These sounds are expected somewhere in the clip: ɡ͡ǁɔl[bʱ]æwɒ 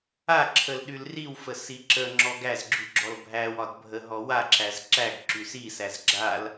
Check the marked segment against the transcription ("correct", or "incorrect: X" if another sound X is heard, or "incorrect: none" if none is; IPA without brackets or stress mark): correct